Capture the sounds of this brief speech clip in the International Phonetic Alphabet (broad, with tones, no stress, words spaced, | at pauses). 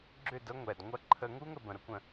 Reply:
ɡ͡ǁʏ˦˨də˦ ŋʷɛ˨dŋʷɐ˦ ǃʰə˧ŋu˦ŋə˨b ə̃˨ɾə˧kʷə̃˨